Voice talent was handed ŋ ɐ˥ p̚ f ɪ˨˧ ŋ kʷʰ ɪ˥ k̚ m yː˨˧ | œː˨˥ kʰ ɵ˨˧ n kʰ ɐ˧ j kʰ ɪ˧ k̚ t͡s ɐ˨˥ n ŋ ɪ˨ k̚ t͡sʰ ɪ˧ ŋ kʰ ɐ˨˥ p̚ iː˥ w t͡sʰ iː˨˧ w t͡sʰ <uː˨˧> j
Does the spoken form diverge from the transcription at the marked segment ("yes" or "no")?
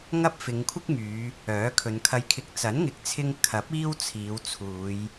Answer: no